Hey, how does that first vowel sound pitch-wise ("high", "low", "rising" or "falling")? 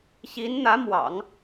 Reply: rising